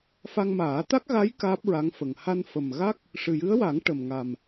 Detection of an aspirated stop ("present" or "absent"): absent